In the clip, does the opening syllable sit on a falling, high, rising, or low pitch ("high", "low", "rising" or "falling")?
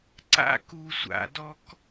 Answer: high